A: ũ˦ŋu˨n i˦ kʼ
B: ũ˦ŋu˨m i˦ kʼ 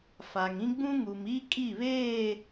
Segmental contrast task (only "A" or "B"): B